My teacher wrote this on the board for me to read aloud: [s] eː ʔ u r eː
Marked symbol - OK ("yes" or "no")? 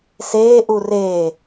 yes